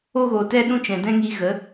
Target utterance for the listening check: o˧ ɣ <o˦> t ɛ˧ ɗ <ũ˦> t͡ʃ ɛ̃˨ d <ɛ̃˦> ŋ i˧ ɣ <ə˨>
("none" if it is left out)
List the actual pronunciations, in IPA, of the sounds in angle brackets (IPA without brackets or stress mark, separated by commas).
o˨, ũ˦, ɛ̃˦, ə˨˦